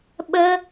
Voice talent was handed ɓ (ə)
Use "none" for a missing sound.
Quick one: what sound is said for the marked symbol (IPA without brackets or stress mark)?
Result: ə